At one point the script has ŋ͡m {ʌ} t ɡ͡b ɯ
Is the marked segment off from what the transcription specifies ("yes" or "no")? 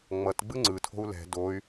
no